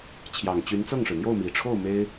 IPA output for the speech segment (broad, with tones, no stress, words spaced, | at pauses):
t͡ɕʰjɑ˨˩ŋ t͡ɕy˧˥nt͡sɤ˥˩ŋʂɻ̩˩ n̪jo˥˩ʊ̯mi˨˩ʈ͡ʂʰo˥˩ʊ̯ me˥ɪ̯